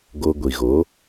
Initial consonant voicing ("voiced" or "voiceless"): voiced